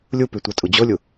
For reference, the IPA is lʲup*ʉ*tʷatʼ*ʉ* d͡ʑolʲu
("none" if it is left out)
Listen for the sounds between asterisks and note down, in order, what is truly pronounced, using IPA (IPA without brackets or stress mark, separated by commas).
ʉ, u